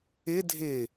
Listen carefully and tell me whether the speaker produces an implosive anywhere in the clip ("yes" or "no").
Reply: no